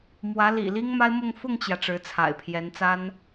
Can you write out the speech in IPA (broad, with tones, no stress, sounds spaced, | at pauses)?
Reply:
m w ä˧˥ l ḭ˨˩ l i˥ ŋ m a˥ ɪ̯ m ʊ˥˧ ŋ f ʊ˥˩ ŋ t͡ɕ j ä˩ ʈ͡ʂ ɻ̩˧˥ t͡sʰ a̰˨˩ ɪ̯ pʰ j ɛ˧˥ n t͡s a˥ n